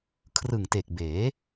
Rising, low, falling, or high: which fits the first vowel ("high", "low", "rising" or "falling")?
low